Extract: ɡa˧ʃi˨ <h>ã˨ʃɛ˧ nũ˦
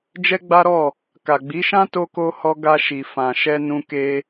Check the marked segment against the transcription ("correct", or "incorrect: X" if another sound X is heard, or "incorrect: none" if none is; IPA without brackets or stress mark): incorrect: f